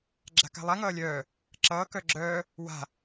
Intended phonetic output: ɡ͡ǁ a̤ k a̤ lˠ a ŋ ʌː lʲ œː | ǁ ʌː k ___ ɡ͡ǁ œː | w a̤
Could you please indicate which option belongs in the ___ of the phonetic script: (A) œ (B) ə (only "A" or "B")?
A